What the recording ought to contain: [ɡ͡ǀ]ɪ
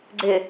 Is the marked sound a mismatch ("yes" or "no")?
no